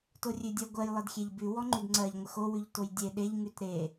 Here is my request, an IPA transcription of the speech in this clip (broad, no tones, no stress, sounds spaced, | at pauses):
t o rʲ ʉ dʲ ɜ ɡʷ ɜ j lˠ ə d xʲ e ʎ b ʉ w ɔ ŋ͡ǃ ʉ d ŋ͡ǀ ɜ ʎ ŋʷ ə x o w ʉ ʎ t o j dʲ e ɗ e ʎ ŋ ʉ t ɾ e